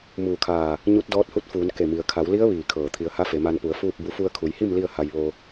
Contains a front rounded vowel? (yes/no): no